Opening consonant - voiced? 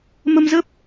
yes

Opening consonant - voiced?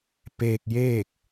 no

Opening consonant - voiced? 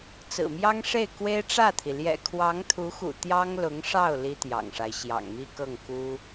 no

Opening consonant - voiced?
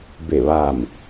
yes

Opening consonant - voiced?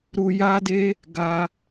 yes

